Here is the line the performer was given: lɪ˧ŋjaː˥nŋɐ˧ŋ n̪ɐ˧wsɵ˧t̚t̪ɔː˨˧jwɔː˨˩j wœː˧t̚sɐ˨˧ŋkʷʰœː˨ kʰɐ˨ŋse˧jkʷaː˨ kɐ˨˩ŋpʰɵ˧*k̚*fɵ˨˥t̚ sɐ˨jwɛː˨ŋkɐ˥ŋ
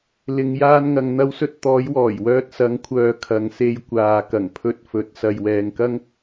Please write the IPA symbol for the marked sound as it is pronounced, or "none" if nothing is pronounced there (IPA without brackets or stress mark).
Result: t̚